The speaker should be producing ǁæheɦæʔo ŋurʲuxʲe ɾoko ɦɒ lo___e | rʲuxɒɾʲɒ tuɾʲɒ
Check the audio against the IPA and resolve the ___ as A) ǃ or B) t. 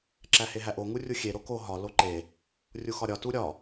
A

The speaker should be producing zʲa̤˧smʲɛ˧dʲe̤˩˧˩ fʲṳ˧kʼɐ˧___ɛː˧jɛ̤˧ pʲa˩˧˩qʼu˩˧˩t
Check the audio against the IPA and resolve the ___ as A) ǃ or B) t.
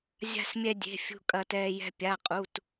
B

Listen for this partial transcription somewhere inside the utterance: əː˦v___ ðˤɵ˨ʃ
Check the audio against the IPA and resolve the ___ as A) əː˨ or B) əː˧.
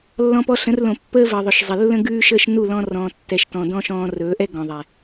A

